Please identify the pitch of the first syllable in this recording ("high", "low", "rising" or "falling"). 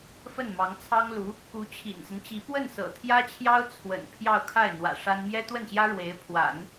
falling